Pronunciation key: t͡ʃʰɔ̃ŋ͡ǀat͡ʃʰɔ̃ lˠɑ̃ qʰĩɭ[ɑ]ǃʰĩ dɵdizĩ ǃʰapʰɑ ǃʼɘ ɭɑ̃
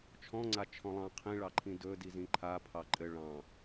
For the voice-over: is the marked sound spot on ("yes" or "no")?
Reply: yes